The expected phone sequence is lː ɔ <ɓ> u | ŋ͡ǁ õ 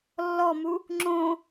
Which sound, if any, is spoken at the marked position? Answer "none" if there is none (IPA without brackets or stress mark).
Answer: m